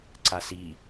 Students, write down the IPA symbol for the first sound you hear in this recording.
ǀ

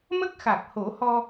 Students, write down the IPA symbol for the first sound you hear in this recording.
m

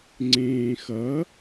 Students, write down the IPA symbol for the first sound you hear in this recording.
ŋ͡ǀ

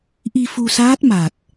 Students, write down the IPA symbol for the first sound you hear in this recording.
ʔ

